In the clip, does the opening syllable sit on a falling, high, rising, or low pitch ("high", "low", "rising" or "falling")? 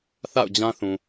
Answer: falling